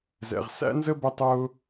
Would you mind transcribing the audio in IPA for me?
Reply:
z ɛ̰˨ ʁ s æ̰˥ n z ə˥ b ə˥ tˤ ʊː˥

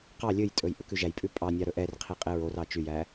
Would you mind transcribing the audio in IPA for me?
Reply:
q ɑ lʲ ɵ j tʼ ɵ j ʔ ɵ k ʉ ʒ æ j pʼ ʉ pʼ ɑ nʲ ɑ ɾ ɵ ʔ ɛ r qʰ i qʼ e ɹ o r ɑ t͡ʃ y j æ

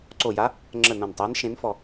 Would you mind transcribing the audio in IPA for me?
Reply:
ǀ o˧˩ j a˧˥ | ŋ͡ǁ ə˧˩ n õ˧˩ n tˤ eː˧˥ n ʃ ẽ˧˥ n f ɔ˧˩

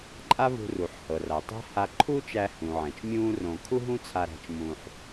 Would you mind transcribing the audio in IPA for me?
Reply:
ǃʼ a˥ v ṳ˧ r u˩ ħ h ɤ˩ r a˩ tˤ æ̤˥ h a˧ ǃʰ uː˥ t͡ʃ æ˧ h ũ˩ ʕ ɛ̃˩ t͡ʃ mʲ ũː˥ r õ˧ kʰ u˥ ɦ ũ˥ t͡sʰ a˧ ɾ æ̤˧ t͡ʃ m ũː˧ ħ

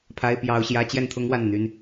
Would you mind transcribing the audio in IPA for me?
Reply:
pʰ a˥ ɪ̯ p j ɑ˥ ʊ̯ ɕ j ä˥ t͡ɕ j ɛ˥˩ n t̪ʰ ʊ˥ ŋ w a˥˩ n n̪ y˥ n

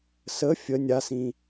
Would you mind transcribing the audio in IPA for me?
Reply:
s ə fʲ ə nʲ a s ĩ

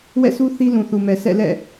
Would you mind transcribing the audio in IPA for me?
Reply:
w ɛ̰˦˨ sʰ u˦ θ i˦ l ũ˨ θ u˨ m ɛ˨ s ɛ̰˦˨ l ɛ̰˦˨

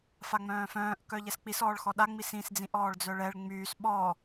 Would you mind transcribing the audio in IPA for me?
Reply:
f a ŋ͡m œ̃ː f œ̃ː ʔ k œ ʎ ɛ s k͡p i s ɔː ɭ x ɔ ɗ a ŋ͡m i s ĩ s d͡z ĩ ʔ ɔː ɭ d͡z œ ɭ ɛ ɭ ŋ͡m yː s ɓ ɔ

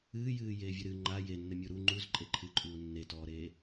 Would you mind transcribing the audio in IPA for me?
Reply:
ɨː j ɨː j eː vʲ ɘ ɾ ɨ ŋ͡ǃ a j e nː ɘ mʲ u ɾ u ŋ͡ǃ u z ǃʼ e ǃʰ ɨ ǃʼ uː nː e t ɔː ɾ eː

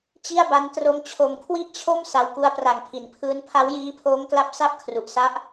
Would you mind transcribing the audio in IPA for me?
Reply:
t͡ɕ i˥˩ a̯ b a˦˥ n t r o˧ m t͡ɕʰ o˨˩ m kʰ w i˥˩ ʔ t͡ɕʰ o˥˩ m s a˧ w k u˦˥ a̯ p r a˨˩ ŋ pʰ i˩˦ n pʰ ɯː˦˥ n pʰ a˦˥ w j iː˦˥ pʰ oː˦˥ ŋ k l a˦˥ p̚ s a˥˩ p̚ kʰ r u˨˩ ʔ s a˦˥ ʔ

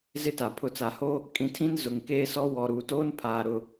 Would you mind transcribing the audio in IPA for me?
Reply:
z ɪ˦ t a˨ pʰ ʊ˨ t͡s a˨ h oː˦ | kʼ ĩ˨ tʰ ĩ˦ n z ʊ˨ ŋ k eː˦ s ɔ˦ w ɔ˨ ɾ uː˨ t oː˦ n pʰ aː˨ ɾ ʊ˦

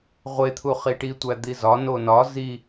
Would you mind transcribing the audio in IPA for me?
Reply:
ʁʷ e t̪ʰ u χ i ʈ i tʷ æ d̪ i z ɒ n o n ɒ z i

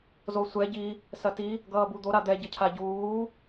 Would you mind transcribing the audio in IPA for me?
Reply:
z o sʷ ɛ ɟ i | s ɐ t i | ɡ ʌː b u d̪ o ɾ a d̪ ɛ ɟ ʌ cʰ a ɟ uː

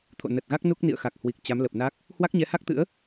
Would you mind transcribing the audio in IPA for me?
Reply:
t̪ʰ o̰˧˨ n ə˨˩ t̚ ɣ a˦˥ k̚ n u˦˥ k̚ n ḭ˧˨ ə̯ x a˨˩ k̚ h w i˨˩ k̚ t͡ɕ a˨˦ m l ə˨˩ p̚ n a˦˥ k̚ | h w a˦˥ k̚ ɲ ɛ˨˦ h a˦˥ k̚ t̪ ɨ̰˧˥ ə̯

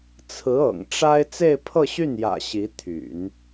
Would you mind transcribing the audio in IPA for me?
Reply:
t͡sʰ ɹ̩˧˥ ɤ̰˨˩ ŋ ʈ͡ʂ a˥ ɪ̯ t͡s e˥˧ ɪ̯ pʰ ɤ˥˧ ɕ y˥˩ n j ä̰˨˩ ɕ i˧˥ t̪ʰ y̰˨˩˦ n

